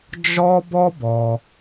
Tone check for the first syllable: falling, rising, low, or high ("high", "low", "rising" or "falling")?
high